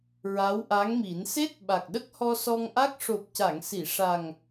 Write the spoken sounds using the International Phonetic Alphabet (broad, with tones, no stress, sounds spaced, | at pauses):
ɹ a˧˥ w ʔ a˧˥ ŋ m i˨˩˦ n s e˦˥ t̚ ɓ a˨˩ k̚ ɗ ə˦˥ k̚ h ɔ˧ s ɔ˧ ŋ ʔ a˦˥ k̚ ʂ o˨˩ p̚ c a˨˩˨ ŋ s i˨˩˨ ʂ a˨˩ ŋ